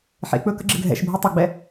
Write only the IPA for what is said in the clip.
ħ ḛ k͡p ɵ k ə̰ ɡ͡ǁ ɘ ɡʱ ɛ̰ ʃ bʱ e tˤ ɘ ɡ͡b ɛ

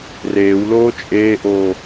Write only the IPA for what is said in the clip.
r eː w l oː t͡ʃʼ eː ʔ oː

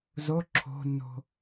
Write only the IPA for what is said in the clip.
z o ǁʰ o̤ nː o̤

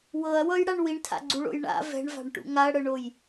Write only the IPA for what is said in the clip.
w ɤ ɐ̯ w ɤ j ɽ a ɳ w i ɳ tʰ a̰ ɡ͡ǀ u ɭ o̰ j ɳ a̰ v ɛ̤ ɳ v a̤ ɳ ʈ ṵ ŋ a ɐ̯ ɽ ɤ ɳ o j

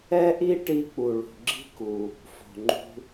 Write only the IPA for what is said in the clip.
ɛ˥ ʔ i˥ ʈ i˧ k͡p u˩ ɭ ṳ˩ ɡ͡ǁ i̤˥ k u˩ | f o̤˩ ŋ͡ǃ ṳ˧

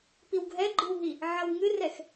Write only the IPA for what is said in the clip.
p i w ɡʱ ɛ ɡ͡ǃ ɨ w ɦ i | ʕ ɐ w ŋ ɨ r ɛ x

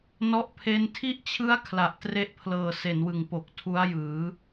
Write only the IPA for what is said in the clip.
n ɔ˦˥ ʔ pʰ e˦˥ n tʰ i˦˥ ʔ t͡ɕʰ ɯ˦˥ a̯ kʰ l a˨˩ ʔ t r e˦˥ ʔ pʰ l ɤː˨˩ s e˩˦ n w ɯ˨˩ ŋ p o˨˩ k̚ tʰ u˦˥ a̯ j ɯː˩˦

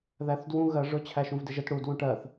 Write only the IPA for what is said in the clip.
ð æ θ d w ũ ɣ ɜ ʐ ʊ t͡ɕʰ æ ʃ ũ v d ɪ ʒ ə t ɽ u d w ũ ʈ ɜ θ

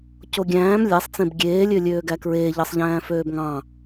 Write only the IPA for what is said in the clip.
c o ɡʲ æ̃ː m lʲ æ sˤ t͡s ẽ b ɡʲ eː lʲ ø lʲ øː ɡ æ k ɹ eː ʎ ɑ sˤ ʎ æ̃ː f øː b ŋ ɑ̃

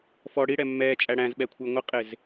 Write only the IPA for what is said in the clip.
f ɔ ɽ i ɽ ɛ mː ɛː t͡ʃʼ æ ɽ æ̃ z ɓ ɛ kʷʰ ɪː ŋʷ ɪ qʼ ɪ z

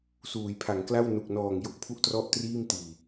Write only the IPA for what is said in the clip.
s uː˩˦ j pʰ a˩˦ ŋ k l a˥˩ w n u˨˩ k̚ n ɔː˨˩ ŋ j o˥˩ k̚ pʰ u˥˩ ʔ t r ɔ˥˩ ʔ t r iː˥˩ m t iː˨˩

